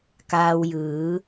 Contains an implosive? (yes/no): no